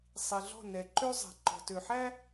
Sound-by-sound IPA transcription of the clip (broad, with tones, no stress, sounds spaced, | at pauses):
sˤ i˨ ɮ ɔ̤˦˨ n ɛ˨ ǃ ø˦ zˤ ɛ̤˨ ǃ ɔ̤˨ t ø˨ ħ æ˦